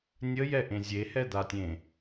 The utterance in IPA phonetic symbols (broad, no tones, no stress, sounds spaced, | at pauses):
nʲ ə j ɛ ʔ ẽ zʲ e h ɛ d̪ a tʲ ẽ